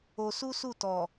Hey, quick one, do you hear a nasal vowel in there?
no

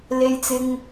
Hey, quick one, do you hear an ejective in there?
no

